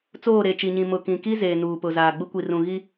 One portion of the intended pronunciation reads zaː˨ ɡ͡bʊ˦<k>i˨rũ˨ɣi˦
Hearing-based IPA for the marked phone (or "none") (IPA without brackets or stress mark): kʷ